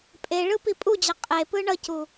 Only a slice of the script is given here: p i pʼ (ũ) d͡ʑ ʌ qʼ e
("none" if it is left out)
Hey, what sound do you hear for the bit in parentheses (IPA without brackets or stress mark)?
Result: u